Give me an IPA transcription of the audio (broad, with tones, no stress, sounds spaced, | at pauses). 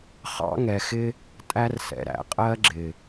χ ɑ̰˧ ŋ ɛ˨ x ɪ˧ | tʼ æ˧ r s ɛ̰˨ ɾ æ̰˨ qʼ ɜ˧ ɡ͡ǁ ɪ˨